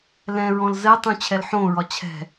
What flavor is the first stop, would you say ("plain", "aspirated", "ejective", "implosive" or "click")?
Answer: plain